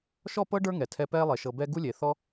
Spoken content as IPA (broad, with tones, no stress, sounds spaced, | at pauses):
ʃ ɔ˦˨ p ɤ˦ ɖ ə˞˦ ŋ ɛ˨ tʰ ɛ˧ p ɛː˦ lˠ e˨ ʃ ɤ˨ b ɛː˧ ɡ u˦ lʲ eː˨ θ ɔ˦